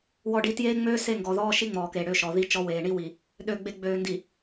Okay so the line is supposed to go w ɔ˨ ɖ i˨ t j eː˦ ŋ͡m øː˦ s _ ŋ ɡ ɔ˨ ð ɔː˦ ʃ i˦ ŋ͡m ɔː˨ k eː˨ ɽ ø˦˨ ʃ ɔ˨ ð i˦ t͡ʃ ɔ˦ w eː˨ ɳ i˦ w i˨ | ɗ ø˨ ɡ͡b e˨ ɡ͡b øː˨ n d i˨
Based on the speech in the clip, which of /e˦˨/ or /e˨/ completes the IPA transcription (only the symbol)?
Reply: e˦˨